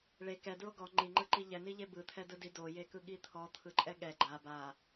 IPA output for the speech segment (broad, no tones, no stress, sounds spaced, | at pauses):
ɭ e k ɛ d ɹ o ɡ ɔ ŋ͡ǃ i ŋ͡ǃ ɯ ǃ i ʎ ɛ n i ʎ e b ɯ t̪ʰ ɛ d ɯ d i d o j e k ɯ ɠ i t̪ʰ ɔ t̪ʰ ɯ ǃʼ ɛ ɠ ɛ ɡ͡ǃ a b a